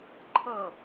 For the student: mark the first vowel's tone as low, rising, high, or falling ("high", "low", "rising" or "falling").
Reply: falling